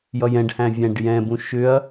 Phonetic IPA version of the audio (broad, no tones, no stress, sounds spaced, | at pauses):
j ʌ j ɛ̃ ɖ h æ̃ vʲ æ̃ ɖ j ɛ̃ b ũ ʃ ʏ ɐ̯